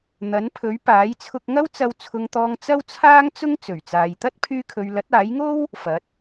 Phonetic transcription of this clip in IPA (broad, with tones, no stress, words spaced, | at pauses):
n̪ɐ˨˥npʰɵ˨˥ɥ paː˨˥jt͡sʰʊ˧k̚ŋɐ˥wt͡sɐ˧w t͡sʰʊ˨ŋt̪ɔː˨ŋ t͡sɐ˥wt͡sʰaː˥ŋt͡sʊ˥ŋ t͡sɵ˨˩ɥt͡saː˨jt̪ɐ˥t̚ pʰyː˧kʰɵ˨ɥ lɐ˨˥t̚aː˨˥jŋo˥w | fɐ˨˥t̚